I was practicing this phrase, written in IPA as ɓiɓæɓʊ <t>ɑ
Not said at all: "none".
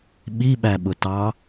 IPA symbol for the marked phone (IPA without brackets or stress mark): t